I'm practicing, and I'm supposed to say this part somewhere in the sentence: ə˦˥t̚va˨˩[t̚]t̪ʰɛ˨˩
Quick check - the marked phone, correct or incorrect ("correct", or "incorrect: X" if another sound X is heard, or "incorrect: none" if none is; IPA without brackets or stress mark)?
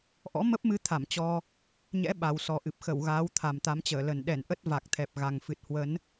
incorrect: k̚